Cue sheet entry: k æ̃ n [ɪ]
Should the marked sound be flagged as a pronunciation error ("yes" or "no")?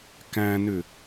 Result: yes